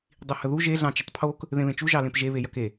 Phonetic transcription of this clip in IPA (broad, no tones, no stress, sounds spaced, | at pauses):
dˤ i h ə ð u ʒ e ɮ ɑ̃ t͡ʃ ə tˤ pʰ o k | ð ẽ β ẽ t͡ʃ u ʒ ɑ l ẽ p ʒ e β e j ɐ k e